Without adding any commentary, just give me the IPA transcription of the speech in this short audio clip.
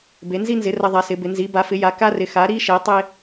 b e˩˧ n z i˧ n z ɪ˩˧ r ɐ˧ ðˤ a˩˧ s ɪ˩˧ b ɪ˩˧ n z i˩˧ b a˩˧ f ɪ˩˧ j a˩˧ k a˧ r ɪ˩˧ x a˩˧ ɾ i˧ ʃ e˩˧ tˤ e˧

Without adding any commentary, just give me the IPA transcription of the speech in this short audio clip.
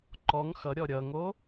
ǃ ɔ ŋ x ʌ ɾʲ ɔ ɾʲ ʌ ŋ o

